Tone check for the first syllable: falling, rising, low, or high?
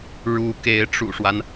rising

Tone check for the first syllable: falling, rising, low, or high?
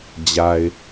low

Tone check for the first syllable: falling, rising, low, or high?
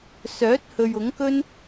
rising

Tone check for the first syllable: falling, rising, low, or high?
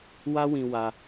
high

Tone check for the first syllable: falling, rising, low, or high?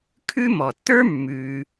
high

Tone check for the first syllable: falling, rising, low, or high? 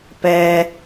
low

